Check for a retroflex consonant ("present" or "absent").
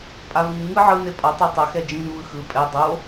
absent